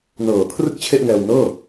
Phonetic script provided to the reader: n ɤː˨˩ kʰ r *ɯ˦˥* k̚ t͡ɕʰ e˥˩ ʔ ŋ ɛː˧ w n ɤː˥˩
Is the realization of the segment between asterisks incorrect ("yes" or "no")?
yes